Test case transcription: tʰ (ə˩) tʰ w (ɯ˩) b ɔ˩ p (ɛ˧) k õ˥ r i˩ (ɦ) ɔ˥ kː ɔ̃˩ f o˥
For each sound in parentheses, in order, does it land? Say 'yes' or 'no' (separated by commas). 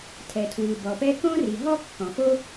no, yes, yes, yes